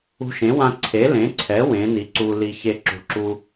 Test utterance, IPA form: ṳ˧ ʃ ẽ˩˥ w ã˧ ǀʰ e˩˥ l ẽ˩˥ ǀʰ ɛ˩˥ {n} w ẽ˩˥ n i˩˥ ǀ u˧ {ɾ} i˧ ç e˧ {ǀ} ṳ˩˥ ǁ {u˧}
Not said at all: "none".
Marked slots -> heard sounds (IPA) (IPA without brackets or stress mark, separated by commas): none, l, ǁ, u˧